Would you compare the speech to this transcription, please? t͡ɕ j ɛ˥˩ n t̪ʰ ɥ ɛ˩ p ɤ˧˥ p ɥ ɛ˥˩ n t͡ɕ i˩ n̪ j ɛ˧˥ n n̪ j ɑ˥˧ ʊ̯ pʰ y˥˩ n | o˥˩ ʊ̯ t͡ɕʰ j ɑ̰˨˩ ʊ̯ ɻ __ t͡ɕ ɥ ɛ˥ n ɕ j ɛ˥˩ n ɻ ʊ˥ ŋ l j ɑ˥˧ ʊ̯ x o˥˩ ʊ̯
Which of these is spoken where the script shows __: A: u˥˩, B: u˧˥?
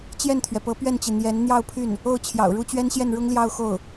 A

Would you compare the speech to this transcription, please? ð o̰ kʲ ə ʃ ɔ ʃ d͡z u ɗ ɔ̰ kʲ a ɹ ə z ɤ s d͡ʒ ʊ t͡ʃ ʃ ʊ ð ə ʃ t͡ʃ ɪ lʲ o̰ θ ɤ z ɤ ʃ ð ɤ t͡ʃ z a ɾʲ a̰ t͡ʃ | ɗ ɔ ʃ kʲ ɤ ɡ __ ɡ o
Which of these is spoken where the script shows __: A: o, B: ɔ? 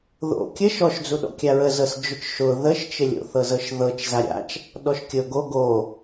A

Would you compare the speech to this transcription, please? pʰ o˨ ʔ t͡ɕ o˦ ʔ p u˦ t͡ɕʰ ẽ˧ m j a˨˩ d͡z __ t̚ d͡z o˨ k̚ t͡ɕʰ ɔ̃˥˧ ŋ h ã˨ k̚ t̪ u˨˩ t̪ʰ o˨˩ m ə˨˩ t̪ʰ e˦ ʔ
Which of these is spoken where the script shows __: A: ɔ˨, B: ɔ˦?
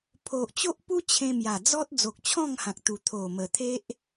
B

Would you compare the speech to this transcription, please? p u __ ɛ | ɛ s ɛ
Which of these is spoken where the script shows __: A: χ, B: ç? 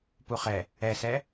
A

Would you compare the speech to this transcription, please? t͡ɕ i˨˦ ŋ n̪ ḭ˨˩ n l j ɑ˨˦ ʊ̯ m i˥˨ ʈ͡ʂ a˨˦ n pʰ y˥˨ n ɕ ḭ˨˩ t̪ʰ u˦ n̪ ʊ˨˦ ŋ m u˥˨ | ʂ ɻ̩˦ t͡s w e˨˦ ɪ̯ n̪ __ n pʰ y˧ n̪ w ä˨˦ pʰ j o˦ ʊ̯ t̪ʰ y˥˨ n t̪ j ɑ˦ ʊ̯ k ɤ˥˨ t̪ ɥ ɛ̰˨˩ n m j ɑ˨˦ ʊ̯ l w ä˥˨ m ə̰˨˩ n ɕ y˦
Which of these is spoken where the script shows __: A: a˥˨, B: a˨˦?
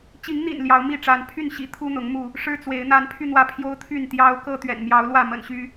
B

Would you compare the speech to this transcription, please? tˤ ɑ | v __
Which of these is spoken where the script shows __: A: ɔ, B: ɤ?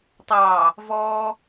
A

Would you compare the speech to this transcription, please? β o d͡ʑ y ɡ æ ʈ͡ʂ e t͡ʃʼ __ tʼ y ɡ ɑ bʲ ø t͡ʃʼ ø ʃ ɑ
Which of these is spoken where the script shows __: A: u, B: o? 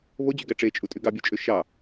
A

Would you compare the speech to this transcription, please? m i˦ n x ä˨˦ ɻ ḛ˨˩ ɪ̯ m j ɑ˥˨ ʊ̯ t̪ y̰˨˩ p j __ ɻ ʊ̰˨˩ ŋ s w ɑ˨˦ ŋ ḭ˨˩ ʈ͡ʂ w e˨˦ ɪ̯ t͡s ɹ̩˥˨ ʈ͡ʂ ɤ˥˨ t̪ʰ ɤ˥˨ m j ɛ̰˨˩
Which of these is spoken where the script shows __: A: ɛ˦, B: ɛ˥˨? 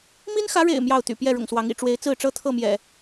B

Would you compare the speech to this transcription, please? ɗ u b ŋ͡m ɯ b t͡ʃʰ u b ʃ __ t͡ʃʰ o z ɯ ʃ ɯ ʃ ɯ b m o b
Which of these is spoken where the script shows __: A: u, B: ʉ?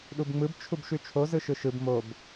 B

